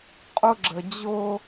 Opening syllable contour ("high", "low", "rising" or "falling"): high